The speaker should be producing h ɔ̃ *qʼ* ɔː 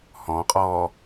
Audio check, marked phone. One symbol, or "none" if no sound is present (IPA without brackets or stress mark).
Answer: qʼ